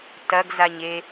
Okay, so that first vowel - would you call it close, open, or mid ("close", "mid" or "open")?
open